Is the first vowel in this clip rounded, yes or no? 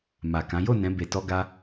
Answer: no